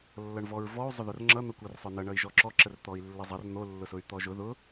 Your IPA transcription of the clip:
lː ʌ ɳ v ɔ ɹ v ɔ u̯ zˤ ʊ ð ʊ r ŋ͡ǁ ʌ n̪ ʌ kʷ ʌ r sˤ ʊ n ʌ ɳ ʌ i̯ ʒ ɔ ǁ ɔ ǁ ə r t̪ ɔ i̯ lː ə zˤ ʌ r n̪ o lː ʊ s ʊ y̯ t̪ ɔ ʒ ʊ ð ʊ

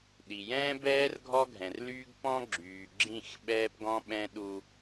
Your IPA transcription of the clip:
ɗ i˨ j ɛ̃ː˦ b ɛː˦ r ɡʱ ɔ˦ ɡʱ ɛ̃˨ r l yː˦ ɡ p ɔ̃˦ ɡ͡ǁ yː˨ ɡ͡ǁ ĩ˦˨ x ɓ ɛː˦ p ɡ ɔ̃˦ ɓ ɛ̃˦ ɗ u˦

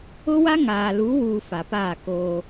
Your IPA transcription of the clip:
ʊ˦ w a˦ ŋ aː˨ l uː˨˦ w uː˨ f a˨ p aː˦˨ k oː˦

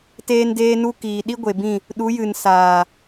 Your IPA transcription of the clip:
t eː˦ n d eː˦ n u˦ k iː˨ ɗ i˦ ɡʷ e˨ b ĩ˦˨ | ɗ u˨˦ j ɨ˨ n s aː˨

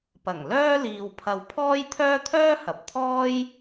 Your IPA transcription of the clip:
p ɐ˨˩ ŋ l œː˥ l iː˧ w pʰ ɐ˧ w pʰ ɔː˥ j t̪ʰ œː˥ t̪ʰ œː˥ h ɐ˨ p̚ t̪ʰ ɔː˥ j

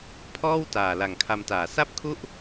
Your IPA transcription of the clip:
pʰ ɔː˥˩ w t aː˨˩ l a˨˩ ŋ kʰ a˧ m t aː˩˦ s a˥˩ p̚ kʰ u˥˩ ʔ

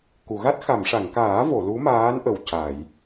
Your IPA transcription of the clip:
k u˨˩˨ ɣ a˦˥ t̚ x a˨˩˨ m ʂ a˨˩˨ ŋ k aː˨˩˦ v o˨˩˨ l u˧˥ m aː˧˥ n ʔ ə˨˩ w c a˨˩˨ j

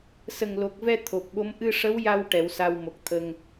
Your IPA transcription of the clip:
s ə˨˩ ŋ l o˨˩ k̚ v ɛ˧ t̪ʰ o˨˩ p̚ ɓ o˧˥ m ʔ ɨ˧ ʂ ə˧˥ w j a˧ w ʈ ɛ˨˩˦ w s a˧ w m o˨˩ k̚ t̪ʰ əː˧ ŋ

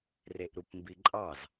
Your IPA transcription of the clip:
r e ʔ ɾ u p m b i ǃʼ ɑ z

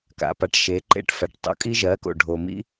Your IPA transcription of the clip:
k a̰˩ p a˩˥ ʈ ʃ e˩˧ ǃ ḛ˥˩ ʈ f æ˩˧˩ ʈ tˤ o̰˩˧ kʼ i˦ ʒ ɜ˩˥ k o̰˩ ɖʱ o˩ m ḭ˦

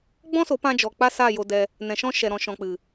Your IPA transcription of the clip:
ɡ͡b ɔ̃˦ s o˨˦ p ã˧ d͡ʒ ɔ˨ k͡p a˦ s a˦˨ j o˧ d ɛ˧ | n ɛ̃˨ ʃ ɔ̃˧ ʃ ɛ˨ ɾ ɔ̃˨ ʃ ɔ̃˨ k͡p ɨ˨

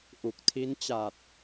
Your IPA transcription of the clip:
ʔ u˨˩ k̚ tʰ i˦˥ n t͡ɕ a˨˩ t̚

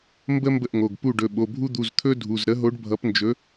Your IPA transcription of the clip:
m b ə˦ m b ə˥˩ ʔ ŋ o˩˧˩ ɡ p u˥˩ ɖ ɵ˩˧˩ ɓ o˩˧˩ bʱ u˦ d̪ u˩˧˩ z t̪ʰ ɵ˦ dʱ u˩˧˩ z ɾ ə˨˥ ɦ o˨˥ ɖ bʱ ʌ˨˥ p n d͡ʒ ɵ˨˥

